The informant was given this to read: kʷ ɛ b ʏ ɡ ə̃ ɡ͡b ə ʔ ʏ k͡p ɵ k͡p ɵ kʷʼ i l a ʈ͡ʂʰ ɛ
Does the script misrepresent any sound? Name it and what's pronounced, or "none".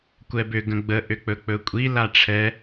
none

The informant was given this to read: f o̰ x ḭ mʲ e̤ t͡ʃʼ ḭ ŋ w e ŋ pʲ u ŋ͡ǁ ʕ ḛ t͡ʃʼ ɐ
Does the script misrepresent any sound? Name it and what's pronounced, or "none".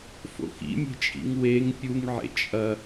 ŋ͡ǁ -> ŋ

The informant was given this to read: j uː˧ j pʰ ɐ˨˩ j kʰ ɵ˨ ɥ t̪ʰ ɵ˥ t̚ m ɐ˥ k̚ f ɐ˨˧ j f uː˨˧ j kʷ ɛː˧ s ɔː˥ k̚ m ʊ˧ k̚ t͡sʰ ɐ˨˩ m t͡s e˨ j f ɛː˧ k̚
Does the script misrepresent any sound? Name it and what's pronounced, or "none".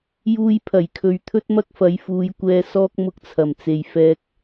none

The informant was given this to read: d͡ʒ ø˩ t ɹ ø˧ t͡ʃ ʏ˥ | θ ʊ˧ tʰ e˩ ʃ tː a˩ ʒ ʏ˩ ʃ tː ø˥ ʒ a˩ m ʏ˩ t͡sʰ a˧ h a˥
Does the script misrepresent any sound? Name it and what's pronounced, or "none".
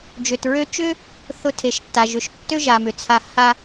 none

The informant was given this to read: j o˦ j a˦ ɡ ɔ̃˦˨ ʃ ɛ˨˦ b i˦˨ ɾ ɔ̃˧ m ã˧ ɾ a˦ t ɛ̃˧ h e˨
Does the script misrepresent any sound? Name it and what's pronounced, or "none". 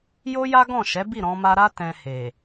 ã˧ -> a˧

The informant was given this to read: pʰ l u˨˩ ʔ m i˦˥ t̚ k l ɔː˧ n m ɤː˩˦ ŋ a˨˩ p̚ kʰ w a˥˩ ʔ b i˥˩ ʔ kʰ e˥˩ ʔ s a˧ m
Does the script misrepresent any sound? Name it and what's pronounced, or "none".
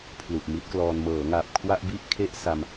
none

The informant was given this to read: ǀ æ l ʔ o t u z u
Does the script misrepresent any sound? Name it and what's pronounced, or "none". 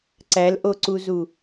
t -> ǀ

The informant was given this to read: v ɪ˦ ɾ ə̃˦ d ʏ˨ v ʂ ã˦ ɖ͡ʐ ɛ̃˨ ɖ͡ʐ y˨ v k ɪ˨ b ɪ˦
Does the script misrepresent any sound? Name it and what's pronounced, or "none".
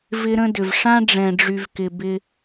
none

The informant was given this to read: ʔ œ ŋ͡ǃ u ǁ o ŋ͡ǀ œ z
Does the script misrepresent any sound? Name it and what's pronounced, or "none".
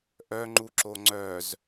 none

